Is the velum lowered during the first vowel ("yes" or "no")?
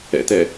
no